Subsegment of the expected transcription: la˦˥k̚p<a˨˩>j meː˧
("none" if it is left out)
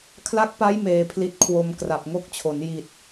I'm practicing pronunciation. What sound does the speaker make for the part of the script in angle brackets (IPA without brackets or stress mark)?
a˦˥